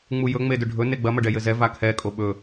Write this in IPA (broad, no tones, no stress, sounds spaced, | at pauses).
ŋ͡m u j ɵ ŋ͡m e d ɵ ɖʱ ɵ n e ɡ͡b ɐ m ɐ ɖ ɛ j ɘ z ɛ v a kʰ ɛ kʼ o ɓ ɵ